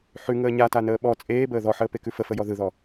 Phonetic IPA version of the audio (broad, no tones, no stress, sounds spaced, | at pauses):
ħ ʉ ŋ əː ɲ a t a n əː ɓ ɔ t͡sʼ eː b əː ð ɔ ħ əː p e k ʉ f ə f ə j ɔ ð ɯ ð ɔ